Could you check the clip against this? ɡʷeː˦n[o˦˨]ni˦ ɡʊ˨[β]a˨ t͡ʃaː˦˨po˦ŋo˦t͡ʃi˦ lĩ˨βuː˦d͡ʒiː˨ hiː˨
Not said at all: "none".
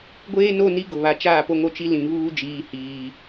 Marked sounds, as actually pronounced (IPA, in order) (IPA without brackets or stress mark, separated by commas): o˦˨, β